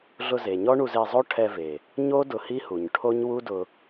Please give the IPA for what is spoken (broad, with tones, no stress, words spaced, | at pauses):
ɮʊ˧ze˨ɲɔ˦ɳu˧z e˧zˤo˦ ʈʰɛ˧ve˨ | ɲo˦ dʊ˧hi˦hu˨ɲ ʈʰo˦ɲwu˦dʊ˧